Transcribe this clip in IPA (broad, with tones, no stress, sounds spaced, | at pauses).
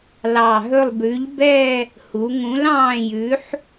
l ɑ˨˩ ɦ ɵ˦˨ lˠ b ʉ˨˥ ʎ b ɛ˦˨ | h u˩˧ ŋ ũ˨˥ l ɑ̃ː˦˨ j ʉ˨˥ ħ